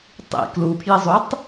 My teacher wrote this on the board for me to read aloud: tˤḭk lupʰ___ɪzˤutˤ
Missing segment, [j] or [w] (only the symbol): j